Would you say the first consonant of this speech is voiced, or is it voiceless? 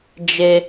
voiced